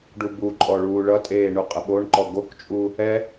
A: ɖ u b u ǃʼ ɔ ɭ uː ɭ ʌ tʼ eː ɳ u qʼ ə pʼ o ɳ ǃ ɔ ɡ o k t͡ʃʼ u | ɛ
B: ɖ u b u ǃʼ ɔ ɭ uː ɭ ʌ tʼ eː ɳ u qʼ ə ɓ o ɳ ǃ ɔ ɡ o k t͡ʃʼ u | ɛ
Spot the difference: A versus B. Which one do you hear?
B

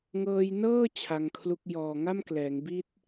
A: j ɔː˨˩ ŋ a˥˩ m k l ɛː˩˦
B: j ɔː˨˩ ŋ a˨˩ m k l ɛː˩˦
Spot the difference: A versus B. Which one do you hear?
A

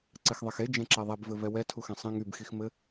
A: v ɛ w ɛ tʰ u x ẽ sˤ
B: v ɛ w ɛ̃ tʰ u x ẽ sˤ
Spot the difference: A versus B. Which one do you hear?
A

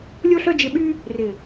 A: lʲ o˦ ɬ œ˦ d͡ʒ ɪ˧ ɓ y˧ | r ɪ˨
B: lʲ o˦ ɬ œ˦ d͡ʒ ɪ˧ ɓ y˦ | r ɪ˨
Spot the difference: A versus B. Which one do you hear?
B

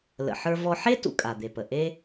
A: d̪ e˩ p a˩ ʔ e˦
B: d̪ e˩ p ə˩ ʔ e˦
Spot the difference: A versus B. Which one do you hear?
B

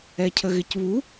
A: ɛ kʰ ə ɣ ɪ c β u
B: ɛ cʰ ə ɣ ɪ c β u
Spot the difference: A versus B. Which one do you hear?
B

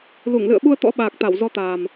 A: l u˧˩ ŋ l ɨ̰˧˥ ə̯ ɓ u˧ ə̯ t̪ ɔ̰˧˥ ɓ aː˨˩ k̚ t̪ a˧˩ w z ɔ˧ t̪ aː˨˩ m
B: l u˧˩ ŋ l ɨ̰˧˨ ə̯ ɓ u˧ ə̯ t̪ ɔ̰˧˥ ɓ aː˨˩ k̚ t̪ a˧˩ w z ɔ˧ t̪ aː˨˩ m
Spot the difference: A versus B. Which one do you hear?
B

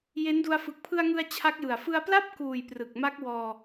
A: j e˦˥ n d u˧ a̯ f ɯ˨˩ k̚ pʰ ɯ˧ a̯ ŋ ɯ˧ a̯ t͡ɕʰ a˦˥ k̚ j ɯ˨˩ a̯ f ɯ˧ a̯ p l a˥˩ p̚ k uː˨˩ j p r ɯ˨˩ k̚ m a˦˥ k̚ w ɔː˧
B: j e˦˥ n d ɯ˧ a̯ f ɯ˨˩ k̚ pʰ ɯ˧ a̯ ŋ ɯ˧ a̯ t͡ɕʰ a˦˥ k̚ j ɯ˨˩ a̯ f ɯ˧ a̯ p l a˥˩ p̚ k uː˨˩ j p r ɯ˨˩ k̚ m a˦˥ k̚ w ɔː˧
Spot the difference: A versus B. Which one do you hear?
A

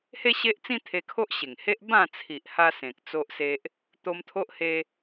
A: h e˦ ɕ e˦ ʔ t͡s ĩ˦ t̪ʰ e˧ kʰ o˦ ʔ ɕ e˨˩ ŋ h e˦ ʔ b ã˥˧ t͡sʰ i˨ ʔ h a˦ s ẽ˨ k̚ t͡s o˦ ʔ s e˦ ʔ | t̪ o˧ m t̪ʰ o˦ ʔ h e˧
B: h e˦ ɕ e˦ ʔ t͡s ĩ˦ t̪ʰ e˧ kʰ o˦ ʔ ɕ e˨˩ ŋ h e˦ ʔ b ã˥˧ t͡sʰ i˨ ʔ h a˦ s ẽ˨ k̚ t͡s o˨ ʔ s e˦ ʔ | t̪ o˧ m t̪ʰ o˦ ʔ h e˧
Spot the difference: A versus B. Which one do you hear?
A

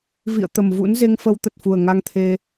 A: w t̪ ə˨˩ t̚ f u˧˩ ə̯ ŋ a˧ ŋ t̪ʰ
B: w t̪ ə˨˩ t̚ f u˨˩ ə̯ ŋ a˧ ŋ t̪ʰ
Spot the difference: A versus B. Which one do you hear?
B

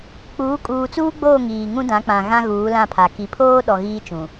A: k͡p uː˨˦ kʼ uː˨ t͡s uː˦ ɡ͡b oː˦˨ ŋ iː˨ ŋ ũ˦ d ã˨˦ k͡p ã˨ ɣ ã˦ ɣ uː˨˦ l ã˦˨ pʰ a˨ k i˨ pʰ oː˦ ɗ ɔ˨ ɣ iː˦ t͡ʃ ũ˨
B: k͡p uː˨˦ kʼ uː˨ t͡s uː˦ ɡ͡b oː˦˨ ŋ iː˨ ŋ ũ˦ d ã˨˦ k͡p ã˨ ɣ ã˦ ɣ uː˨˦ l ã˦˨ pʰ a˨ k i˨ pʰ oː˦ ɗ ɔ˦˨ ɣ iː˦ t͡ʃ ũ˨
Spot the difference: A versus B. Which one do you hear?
A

